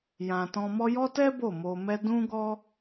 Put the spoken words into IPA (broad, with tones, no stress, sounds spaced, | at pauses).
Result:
j ã˨ t ɔ̃˧ m ɔ˦ j ɔ˦ t ɛ˦ b o˦˨ m o˧ m ɛ˦ d ũ˦ ɡ ɔ˦